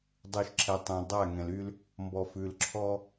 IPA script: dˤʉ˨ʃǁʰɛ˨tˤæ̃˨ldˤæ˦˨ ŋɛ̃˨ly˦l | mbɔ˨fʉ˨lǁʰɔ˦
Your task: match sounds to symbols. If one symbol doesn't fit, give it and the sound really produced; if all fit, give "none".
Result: none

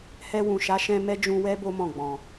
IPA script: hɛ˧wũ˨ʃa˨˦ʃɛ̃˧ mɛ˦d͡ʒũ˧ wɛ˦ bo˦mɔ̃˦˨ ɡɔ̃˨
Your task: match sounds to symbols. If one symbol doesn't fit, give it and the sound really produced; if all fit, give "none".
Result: ɡ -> ɡ͡b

